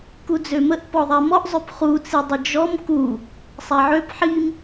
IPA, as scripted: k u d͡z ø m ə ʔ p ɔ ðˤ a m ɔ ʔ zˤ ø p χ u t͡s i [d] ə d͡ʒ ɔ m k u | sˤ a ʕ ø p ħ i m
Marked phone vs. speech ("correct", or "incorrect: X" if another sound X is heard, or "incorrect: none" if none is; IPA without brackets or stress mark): incorrect: dˤ